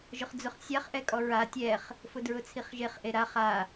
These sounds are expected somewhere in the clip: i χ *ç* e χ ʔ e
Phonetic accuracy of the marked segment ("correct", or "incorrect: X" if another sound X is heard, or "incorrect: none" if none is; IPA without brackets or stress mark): incorrect: ʒ